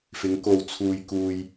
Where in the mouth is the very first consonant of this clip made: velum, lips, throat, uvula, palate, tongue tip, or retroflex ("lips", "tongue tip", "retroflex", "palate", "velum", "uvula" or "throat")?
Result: lips